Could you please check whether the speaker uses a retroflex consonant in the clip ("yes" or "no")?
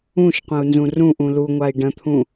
yes